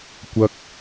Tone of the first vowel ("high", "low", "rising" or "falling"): high